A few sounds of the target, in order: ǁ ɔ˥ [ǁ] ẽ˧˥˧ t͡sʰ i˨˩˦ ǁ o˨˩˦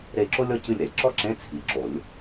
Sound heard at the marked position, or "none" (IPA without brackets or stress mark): ǁ